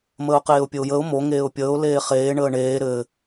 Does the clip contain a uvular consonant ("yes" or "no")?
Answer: yes